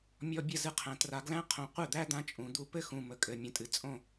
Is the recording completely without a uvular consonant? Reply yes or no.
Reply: no